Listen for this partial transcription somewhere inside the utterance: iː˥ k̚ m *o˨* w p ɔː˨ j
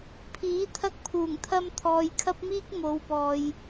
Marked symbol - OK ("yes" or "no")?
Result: no